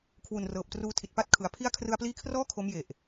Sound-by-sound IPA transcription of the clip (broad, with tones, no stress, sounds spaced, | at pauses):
kʰ w u˨˩ n r ɤː˨˩ p̚ t r uː˧ tʰ i˨˩ t̚ p a˥˩ t̚ kʰ ɯ˨˩ a̯ pʰ i˦˥ a̯ kʰ r ɯ˧ a̯ p l iː˦˥ kʰ r ɔː˥˩ kʰ o˦˥ m j e˨˩ ʔ